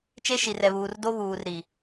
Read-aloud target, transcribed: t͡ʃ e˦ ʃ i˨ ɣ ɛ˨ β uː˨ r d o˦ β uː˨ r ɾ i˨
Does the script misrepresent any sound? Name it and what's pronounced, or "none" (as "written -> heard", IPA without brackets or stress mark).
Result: ɣ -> r